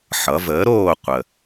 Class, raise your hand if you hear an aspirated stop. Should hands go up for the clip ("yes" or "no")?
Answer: no